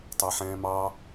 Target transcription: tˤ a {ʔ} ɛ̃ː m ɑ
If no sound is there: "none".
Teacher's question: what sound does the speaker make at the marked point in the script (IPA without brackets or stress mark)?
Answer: ħ